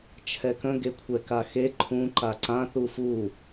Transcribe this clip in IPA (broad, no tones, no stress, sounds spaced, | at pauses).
t͡ʃʰ ɛ k ə̃ ɡ e kʷʰ ɛ k a x e ǃʰ ũ ǃ a ǀ ã θ u f u